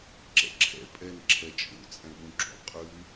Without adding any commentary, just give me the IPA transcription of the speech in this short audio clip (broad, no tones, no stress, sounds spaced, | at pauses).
ǁ ɛ̰ ǁʰ ɛ̰ pʼ ɛ n ǁʰ ɛ t͡ʃʼ o̰ t͡sʼ ɛ̃ ɓ ũ ǁ o̰ qʼ ʉ